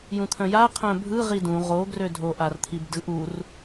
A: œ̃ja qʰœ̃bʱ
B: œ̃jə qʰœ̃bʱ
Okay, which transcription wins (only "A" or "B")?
A